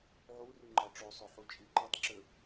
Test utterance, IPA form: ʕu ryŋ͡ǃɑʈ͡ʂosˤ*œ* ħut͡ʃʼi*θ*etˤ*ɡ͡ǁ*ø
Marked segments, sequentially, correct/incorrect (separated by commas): incorrect, incorrect, incorrect